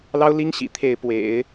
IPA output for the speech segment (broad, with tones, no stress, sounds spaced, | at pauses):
l ɑ˥ ʊ̯ l i˥ ŋ ɕ ḭ˨˩ t̪ʰ e˥˩ ɪ̯ p w ḛ˨˩˦ ɪ̯